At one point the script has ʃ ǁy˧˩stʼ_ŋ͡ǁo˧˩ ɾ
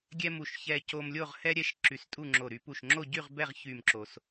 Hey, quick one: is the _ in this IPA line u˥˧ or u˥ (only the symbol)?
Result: u˥˧